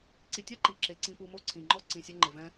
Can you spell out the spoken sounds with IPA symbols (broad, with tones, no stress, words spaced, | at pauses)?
ǀi˨tʲa˥ ǃi˨ǁe˨ ǀĩ˨pu˨ mo˥ǀʰĩ˩ŋ͡ǃɔ˥ ǀĩ˨sʲɛ˦ŋ͡ǃɪ˨ vɛ̃˦